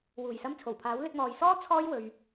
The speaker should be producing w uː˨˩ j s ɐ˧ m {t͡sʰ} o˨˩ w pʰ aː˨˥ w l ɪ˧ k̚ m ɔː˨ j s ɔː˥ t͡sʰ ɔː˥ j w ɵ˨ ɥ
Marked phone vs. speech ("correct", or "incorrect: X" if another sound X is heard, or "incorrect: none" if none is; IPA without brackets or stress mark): correct